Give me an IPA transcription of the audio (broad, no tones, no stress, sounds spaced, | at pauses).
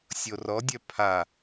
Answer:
sʲ o r ɔ dʲ œ pʰ a